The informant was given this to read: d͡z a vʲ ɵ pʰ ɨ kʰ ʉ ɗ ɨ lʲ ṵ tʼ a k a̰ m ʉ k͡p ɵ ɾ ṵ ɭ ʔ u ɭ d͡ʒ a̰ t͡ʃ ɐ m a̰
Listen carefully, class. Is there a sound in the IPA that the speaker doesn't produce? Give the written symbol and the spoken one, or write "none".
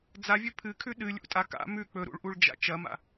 none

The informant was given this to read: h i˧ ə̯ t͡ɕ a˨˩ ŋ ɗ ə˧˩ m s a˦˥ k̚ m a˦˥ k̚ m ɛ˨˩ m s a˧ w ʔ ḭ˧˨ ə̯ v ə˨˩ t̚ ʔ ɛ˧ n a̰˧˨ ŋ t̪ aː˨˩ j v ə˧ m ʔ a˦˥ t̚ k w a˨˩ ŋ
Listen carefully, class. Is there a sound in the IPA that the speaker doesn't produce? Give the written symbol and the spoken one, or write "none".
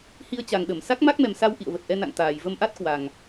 none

